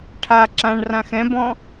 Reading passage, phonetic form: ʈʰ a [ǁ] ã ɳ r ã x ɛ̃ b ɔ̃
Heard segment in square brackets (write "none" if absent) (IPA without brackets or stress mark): ǁ